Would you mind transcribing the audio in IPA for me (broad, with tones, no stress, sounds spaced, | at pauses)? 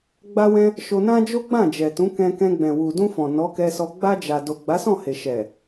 ɡ͡b a˧ w ɛ̃˧ | ʃ o˧ n ã˦ d͡ʒ o˦ ɡ͡b ã˦˨ d͡ʒ ɛ˨ t ũ˨˦ k ɛ̃˧ k ɛ̃˧ ɡ͡b ɛ̃˨ w u˨ d ũ˧ f ɔ̃˨ n ɔ˨˦ k ɛ˧ s ɔ˧ ɡ͡b a˧ d͡ʒ a˨ d o˨ ɡ͡b a˨˦ s ɔ̃˦˨ h e˨ ʃ ɛ˨